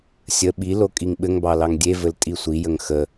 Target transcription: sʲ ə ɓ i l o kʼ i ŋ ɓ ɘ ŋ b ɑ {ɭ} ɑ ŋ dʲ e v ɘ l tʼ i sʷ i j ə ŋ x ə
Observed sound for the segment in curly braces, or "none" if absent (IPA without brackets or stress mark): l